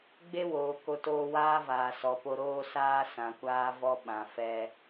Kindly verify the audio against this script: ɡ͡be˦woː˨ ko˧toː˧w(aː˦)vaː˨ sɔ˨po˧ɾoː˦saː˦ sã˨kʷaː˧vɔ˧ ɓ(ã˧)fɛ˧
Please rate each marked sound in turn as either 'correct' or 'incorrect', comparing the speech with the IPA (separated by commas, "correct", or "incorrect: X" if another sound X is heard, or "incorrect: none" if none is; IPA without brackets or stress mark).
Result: correct, incorrect: ã˨